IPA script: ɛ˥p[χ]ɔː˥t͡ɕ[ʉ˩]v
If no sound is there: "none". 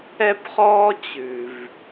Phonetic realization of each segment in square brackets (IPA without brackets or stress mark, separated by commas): χ, ʉ˩